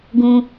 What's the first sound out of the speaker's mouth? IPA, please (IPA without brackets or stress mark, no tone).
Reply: ɡ